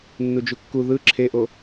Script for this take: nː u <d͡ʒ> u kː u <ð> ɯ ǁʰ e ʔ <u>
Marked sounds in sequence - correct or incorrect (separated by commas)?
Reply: correct, correct, incorrect